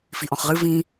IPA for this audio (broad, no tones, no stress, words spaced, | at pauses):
fiʔɔ̃χʁɨ vĩ